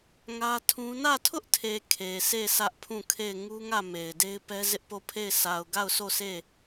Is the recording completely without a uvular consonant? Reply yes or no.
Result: yes